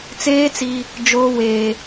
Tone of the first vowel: high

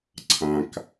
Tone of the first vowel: low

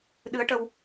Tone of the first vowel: rising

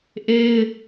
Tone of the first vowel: high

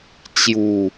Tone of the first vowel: low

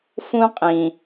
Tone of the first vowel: high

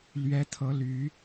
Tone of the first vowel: rising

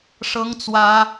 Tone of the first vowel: high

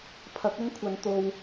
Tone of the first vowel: rising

